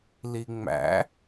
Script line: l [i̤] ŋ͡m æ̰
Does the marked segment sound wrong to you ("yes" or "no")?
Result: yes